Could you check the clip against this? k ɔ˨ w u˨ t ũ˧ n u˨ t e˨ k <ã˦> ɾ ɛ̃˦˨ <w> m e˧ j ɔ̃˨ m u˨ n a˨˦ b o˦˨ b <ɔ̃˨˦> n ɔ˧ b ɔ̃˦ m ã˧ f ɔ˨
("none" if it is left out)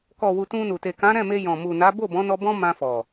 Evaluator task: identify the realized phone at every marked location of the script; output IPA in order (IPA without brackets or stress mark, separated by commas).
ã˨˦, none, ɔ̃˨˦